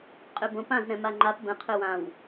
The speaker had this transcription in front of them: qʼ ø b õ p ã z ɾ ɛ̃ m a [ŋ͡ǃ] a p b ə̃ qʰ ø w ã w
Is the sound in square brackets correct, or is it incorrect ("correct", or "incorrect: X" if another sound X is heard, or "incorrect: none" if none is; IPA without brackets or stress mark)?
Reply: correct